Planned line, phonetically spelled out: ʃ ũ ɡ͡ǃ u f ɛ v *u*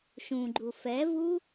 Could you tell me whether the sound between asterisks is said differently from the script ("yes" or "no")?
no